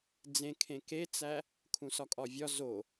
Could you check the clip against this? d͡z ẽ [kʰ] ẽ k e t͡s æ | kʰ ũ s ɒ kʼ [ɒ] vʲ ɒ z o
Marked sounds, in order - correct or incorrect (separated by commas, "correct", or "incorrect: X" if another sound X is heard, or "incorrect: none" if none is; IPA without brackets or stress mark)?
correct, correct